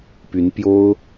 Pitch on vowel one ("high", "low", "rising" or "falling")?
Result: rising